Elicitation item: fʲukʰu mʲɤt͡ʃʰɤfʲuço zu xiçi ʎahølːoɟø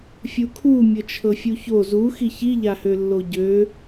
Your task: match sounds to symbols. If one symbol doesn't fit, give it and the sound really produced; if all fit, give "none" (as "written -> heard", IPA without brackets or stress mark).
none